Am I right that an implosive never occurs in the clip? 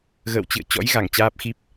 yes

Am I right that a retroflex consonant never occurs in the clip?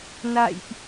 yes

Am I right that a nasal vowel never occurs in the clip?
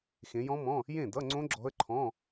no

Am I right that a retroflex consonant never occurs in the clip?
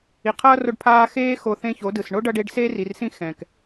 no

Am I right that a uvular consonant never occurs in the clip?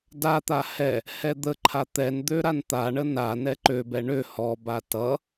yes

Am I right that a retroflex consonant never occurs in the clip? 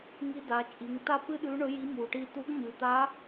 no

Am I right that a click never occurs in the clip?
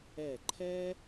no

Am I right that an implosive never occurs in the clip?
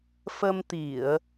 yes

